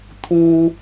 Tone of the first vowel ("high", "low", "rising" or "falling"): high